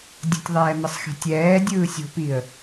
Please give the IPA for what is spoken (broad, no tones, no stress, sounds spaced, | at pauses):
dʲ ə̤ tʲ ðˤ ɛː m ə sˤ x e̤ tʲ ɛː dʲ ɯː sʲ o̤ p i ə̯